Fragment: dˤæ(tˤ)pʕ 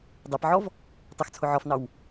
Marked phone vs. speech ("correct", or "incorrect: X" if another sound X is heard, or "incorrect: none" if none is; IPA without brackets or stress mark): incorrect: none